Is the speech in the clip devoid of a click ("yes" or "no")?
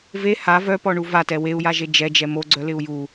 no